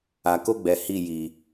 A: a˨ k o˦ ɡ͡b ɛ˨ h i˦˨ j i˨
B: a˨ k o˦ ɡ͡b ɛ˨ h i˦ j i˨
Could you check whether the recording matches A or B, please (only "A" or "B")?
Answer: A